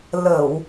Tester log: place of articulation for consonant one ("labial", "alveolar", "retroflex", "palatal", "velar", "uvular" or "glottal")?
alveolar